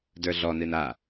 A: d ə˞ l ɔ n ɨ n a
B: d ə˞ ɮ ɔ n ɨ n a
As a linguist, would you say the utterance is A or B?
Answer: B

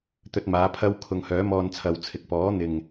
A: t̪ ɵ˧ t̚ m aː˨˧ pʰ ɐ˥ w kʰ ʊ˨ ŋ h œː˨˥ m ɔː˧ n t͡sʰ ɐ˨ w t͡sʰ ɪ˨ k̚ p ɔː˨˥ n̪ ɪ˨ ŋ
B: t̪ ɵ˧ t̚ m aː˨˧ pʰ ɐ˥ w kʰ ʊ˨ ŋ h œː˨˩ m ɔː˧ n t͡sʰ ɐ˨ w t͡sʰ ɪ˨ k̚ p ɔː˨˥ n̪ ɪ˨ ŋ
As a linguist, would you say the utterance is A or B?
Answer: A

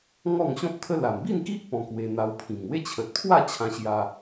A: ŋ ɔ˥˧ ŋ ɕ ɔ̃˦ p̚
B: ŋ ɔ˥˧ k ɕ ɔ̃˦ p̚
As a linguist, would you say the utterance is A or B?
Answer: A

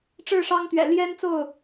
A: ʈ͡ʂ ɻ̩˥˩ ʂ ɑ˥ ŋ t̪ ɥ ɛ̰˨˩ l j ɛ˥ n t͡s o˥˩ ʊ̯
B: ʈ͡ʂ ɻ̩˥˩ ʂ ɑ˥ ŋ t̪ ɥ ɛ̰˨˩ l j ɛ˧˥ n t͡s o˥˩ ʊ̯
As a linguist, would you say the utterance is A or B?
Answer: A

